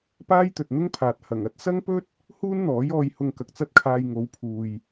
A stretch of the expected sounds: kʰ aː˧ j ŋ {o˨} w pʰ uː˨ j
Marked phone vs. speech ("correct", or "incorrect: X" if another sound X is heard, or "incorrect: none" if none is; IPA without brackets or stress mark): incorrect: o˨˧